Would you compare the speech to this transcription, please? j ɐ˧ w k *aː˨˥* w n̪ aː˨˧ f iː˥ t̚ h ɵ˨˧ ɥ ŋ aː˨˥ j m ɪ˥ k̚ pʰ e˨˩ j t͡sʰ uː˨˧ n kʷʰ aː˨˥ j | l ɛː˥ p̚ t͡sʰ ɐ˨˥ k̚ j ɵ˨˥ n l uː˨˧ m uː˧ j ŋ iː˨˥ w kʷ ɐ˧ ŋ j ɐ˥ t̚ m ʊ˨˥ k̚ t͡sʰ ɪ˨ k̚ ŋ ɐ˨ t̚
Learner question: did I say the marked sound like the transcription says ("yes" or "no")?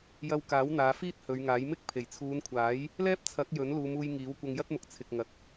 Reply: yes